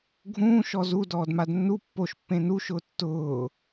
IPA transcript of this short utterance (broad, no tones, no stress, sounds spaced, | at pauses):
ɡʱ ũː ʃ ɔ z u d ɔː d m a d nː u pː o ʃ pː ẽ n u ʃ ʊː tː ʊː